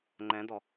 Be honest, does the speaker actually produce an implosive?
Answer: no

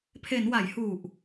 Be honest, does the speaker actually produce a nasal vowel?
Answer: no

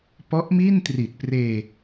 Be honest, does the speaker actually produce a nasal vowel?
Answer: no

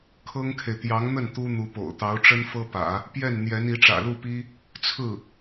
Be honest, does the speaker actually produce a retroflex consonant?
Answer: yes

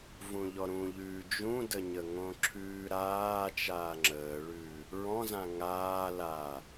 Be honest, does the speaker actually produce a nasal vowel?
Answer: yes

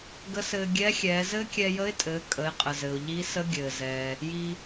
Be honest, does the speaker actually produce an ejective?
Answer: yes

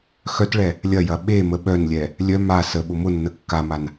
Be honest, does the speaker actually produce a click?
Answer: no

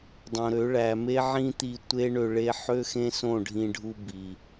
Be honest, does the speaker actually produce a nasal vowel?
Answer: yes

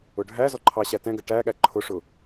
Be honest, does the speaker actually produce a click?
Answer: yes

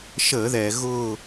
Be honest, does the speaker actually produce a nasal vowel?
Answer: no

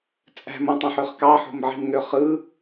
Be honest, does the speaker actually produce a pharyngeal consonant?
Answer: yes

